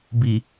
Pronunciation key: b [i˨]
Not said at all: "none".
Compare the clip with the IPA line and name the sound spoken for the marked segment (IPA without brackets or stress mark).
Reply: i˨